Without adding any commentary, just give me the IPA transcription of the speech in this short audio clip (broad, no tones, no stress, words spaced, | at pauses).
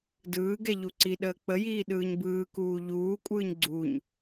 dɯːɡɛ ʎuǀiɗəː k͡pəjiː ɗɯːɲbɯːkuː ʎuːkʷʼɯːɲ ɡ͡ǀuɲ